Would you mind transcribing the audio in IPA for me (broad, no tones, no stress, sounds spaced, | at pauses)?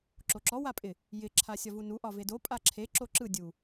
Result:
ǁ o ǁ ɔ w a pʼ ɪ | j ɪ ǁʰ a sʲ ɒ v u n u ʔ ɒ v e d o pʼ a ǁʰ e ǁ o ǁ ɯ dʲ u